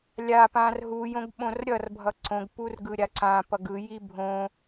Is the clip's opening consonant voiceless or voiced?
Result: voiced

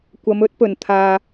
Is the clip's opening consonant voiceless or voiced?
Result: voiceless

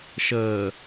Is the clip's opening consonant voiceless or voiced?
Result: voiceless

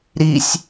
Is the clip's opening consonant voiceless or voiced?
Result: voiced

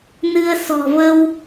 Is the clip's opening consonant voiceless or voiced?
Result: voiced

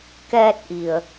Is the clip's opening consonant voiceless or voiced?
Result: voiceless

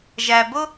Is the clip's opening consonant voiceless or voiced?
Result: voiced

